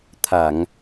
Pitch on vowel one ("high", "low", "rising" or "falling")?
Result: low